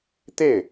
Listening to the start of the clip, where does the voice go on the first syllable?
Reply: falling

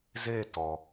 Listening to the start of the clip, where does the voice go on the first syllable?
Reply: falling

